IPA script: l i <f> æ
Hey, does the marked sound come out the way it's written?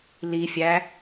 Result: no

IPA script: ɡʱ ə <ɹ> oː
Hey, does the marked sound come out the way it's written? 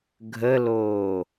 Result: no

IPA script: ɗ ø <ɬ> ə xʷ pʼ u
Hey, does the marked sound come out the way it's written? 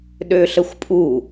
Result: yes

